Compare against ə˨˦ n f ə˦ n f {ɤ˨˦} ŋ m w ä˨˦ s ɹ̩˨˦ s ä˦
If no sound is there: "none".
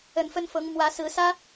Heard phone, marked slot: ɤ˨˦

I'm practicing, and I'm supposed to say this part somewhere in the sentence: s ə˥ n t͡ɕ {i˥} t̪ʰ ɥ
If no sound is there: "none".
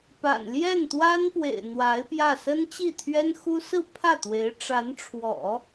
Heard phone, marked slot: i˥˩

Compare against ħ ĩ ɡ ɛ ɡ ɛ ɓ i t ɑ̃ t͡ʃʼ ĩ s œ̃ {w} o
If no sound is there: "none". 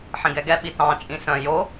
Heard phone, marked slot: j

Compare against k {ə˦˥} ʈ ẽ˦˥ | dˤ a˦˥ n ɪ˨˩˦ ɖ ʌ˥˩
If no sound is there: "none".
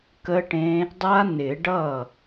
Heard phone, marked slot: ə˦˥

